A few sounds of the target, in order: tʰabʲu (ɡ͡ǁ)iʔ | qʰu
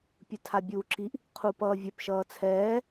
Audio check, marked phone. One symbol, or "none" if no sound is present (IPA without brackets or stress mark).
ǁ